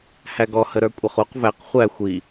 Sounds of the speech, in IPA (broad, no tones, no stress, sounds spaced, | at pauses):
h æ ɡ ɔ h ə ɾ ə˞ kʷʼ ʌ χ u q v æ q χʷ æ xʷ i